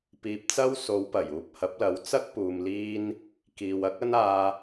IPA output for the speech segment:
p iː˧ p̚ t͡s ɐ˥ w s o˨˧ w p ɐ˨˩ j uː˧ p̚ h ɐ˨˥ p̚ l ɐ˨˧ w t͡s ɐ˥ k̚ p uː˨ m l iː˥ n | k iː˨ w ɐ˥ k̚ ɐ˥ n aː˧

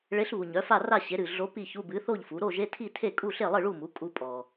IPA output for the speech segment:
ɭ e˧˥ ɬ β u˨ ɲ œ˩˥ f a˥˨ r a˥˨ ɕ e˩˥ ɾ ɨ˨ ɮ o˧˥ p i˥˨ ç u˧˥˧ b ɨ˩˥ θ o˥˨ ʎ f u˩˥ ɾ o˥˨ ʒ e˧˥˧ tʰ i˥˨ tʰ e˥˨ kʼ u˥˨ ɬ e˥˨ lˠ ɨ˥˨ ɭ u˥˨ m u˩˥ kʼ u˥ pʼ ɔ˨

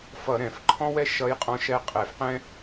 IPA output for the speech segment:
f ʌ˧˩˧ ɾ ɛ̃˩ f ǃʰ ɔ̃˥ w ɛ˥ ʃ ʌ˧˥ j qʼ ɔ̃˧˥ ʃ ɛ˧˥ qʼ ɛ˧˩˧ f q ɛ̃˥

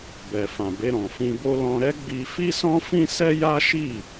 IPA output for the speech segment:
b ɛ˨ f ã˨ b e˧ ɾ ɔ̃˨ f ĩ˧ b o˦ l ɔ̃˧ ɾ ɛ˦ ɡ͡b i˧ f i˦ s ɔ̃˦ f ĩ˦ s ɛ˦ j a˦ ʃ i˦˨

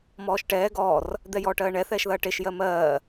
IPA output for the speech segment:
m ɔː ʃ ʈ ɛː ɡ ɔː r | d̪ ɛ j ɔː ʈ ɜː ɳ ɛ θ ɛː ʃ ð ɐː ʈ e ʃ j ɜ m ɜː

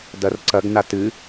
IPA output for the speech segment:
d ɐ r ǀ ɐ ɡ n a t ɨ

